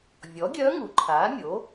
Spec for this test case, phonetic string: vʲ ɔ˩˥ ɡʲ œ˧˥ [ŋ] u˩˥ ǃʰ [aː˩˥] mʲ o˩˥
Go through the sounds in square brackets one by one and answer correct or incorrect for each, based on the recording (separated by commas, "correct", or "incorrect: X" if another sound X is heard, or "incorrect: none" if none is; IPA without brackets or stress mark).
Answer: correct, correct